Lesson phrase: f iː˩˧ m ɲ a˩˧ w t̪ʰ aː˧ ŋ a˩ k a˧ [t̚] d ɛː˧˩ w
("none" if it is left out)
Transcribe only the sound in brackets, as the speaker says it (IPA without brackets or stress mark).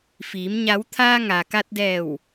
t̚